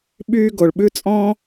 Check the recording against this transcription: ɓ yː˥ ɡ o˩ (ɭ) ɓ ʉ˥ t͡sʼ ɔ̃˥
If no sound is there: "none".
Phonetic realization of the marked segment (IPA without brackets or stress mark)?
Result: ɭ